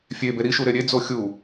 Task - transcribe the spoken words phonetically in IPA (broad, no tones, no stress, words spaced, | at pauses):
fʲebe ɾiʃuɾe ɾʲed͡zo xʲu